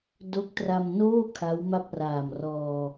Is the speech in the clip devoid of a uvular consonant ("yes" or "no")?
yes